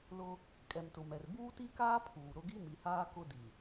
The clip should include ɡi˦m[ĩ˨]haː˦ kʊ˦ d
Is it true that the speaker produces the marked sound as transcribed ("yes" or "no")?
no